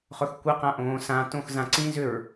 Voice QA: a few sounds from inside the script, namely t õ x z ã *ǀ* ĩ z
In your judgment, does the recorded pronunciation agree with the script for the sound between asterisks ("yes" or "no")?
yes